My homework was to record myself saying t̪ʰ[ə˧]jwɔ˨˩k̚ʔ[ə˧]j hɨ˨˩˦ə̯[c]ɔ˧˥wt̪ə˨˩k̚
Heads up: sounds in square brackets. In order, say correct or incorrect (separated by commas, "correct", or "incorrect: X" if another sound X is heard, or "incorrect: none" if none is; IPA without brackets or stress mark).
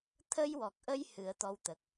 correct, correct, incorrect: t̪